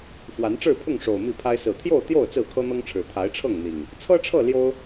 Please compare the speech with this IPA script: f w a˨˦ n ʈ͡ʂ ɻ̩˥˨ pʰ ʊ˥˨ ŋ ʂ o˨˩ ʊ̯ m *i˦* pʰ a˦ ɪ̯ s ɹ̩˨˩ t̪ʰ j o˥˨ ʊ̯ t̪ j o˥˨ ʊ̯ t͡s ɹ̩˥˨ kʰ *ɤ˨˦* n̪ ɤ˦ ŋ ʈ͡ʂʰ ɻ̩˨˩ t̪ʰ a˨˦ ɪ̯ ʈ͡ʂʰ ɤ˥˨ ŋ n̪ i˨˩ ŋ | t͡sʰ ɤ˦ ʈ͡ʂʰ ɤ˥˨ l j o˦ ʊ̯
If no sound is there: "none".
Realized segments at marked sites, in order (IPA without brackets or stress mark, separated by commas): i˥˨, ɤ˦